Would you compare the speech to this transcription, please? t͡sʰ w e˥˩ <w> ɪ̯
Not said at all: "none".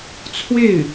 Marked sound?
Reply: none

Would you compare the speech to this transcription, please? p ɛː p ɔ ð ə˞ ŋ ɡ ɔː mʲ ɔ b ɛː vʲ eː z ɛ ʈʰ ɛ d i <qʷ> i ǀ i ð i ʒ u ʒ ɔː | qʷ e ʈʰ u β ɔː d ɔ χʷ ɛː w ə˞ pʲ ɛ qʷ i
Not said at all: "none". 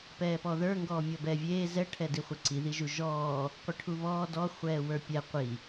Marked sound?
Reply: χʷ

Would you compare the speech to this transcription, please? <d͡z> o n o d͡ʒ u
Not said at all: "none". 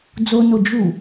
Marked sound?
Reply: d͡z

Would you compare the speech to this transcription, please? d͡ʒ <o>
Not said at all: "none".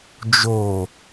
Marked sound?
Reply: o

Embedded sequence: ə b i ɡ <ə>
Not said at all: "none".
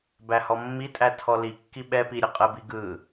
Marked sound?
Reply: ɯ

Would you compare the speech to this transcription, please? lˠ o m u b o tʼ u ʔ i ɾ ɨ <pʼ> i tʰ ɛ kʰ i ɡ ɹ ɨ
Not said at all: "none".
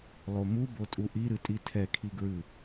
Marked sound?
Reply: tʼ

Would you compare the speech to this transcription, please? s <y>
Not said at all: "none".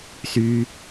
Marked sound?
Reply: y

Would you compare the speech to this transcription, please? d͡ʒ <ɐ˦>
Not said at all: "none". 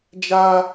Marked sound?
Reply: a˦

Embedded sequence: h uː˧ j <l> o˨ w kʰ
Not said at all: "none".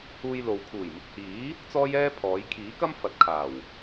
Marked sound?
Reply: l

